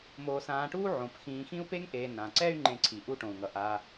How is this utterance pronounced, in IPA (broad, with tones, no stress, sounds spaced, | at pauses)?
m oː˨ s ãː˨ ʈ uː˦ ʕ õ˩ p x ĩː˨ x ĩ˥ u̯ p e˥ ŋ ʔ eː˨ n ã˩ ǀ ɛ˦ y̯ ŋ͡ǃ ẽ˨ ǀʰ i˩ ʔ u˦ ʈ õ˩ u̯ ŋ ʌ˩ ʔ a˨